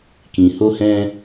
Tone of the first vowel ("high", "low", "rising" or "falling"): low